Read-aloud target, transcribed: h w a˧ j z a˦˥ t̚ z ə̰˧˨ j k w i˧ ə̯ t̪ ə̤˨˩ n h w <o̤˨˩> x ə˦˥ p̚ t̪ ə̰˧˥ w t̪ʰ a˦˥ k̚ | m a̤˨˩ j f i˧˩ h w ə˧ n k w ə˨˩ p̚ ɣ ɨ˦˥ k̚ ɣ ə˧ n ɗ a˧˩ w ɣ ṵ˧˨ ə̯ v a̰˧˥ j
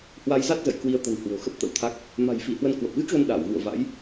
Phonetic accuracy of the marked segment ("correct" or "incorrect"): correct